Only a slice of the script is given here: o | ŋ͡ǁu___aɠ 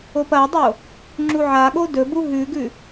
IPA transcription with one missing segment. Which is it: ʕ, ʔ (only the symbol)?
ʕ